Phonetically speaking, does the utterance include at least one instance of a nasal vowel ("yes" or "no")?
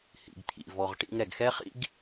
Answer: no